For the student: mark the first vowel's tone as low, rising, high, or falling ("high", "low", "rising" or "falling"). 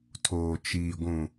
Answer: low